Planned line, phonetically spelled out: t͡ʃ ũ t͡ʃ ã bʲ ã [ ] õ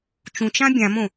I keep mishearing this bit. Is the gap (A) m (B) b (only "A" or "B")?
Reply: A